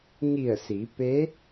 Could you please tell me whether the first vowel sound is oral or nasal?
oral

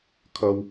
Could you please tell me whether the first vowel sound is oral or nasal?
oral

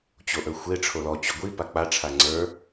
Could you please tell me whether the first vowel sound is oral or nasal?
oral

